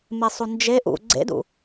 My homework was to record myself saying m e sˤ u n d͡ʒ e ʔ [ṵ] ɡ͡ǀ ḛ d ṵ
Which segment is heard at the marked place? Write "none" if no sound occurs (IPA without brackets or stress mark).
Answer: ṵ